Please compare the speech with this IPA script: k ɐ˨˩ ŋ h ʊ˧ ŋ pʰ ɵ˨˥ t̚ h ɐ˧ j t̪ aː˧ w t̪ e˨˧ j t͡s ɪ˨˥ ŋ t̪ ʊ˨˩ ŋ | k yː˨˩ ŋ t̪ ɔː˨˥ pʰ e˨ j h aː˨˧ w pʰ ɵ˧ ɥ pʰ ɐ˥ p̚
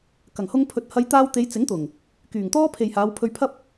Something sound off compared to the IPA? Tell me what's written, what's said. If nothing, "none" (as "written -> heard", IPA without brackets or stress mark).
ɔː˨˥ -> ɔː˥